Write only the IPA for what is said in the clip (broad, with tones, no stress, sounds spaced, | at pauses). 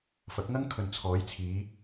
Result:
f ɐ˨˥ k̚ ŋ ɐ˥ ŋ kʰ ɵ˨ n t͡sʰ ɔː˨˥ j t͡sʰ iː˨˥